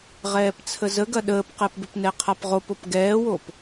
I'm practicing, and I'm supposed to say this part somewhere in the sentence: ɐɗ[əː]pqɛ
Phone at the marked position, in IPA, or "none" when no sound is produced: əː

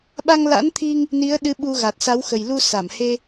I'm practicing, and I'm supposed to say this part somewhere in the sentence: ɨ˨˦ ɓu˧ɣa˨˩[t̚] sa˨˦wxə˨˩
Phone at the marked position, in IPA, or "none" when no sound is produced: t̚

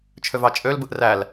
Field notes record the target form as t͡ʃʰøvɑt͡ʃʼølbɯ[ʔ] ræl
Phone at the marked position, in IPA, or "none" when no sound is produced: ʔ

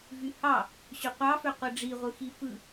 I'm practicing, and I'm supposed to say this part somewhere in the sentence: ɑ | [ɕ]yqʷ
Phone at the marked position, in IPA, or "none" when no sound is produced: ɕ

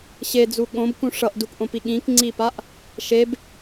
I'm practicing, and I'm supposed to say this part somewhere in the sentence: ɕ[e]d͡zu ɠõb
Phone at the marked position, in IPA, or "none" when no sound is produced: e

